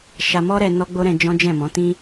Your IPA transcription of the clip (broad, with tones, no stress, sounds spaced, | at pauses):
ʃ a˧ m ɔ˦ ɾ ɛ˧ n ɔ˦ ɡ͡b o˦ ɾ ɛ̃˧ d͡ʒ ɔ̃˦ d͡ʒ ɛ̃˦˨ m ɔ̃˨˦ t ĩ˦